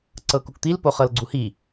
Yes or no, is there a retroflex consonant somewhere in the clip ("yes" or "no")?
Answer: no